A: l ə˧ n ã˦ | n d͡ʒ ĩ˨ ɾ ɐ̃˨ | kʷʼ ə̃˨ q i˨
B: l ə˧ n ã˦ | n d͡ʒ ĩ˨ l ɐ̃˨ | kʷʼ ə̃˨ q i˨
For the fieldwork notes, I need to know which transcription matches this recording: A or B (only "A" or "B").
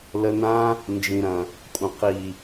A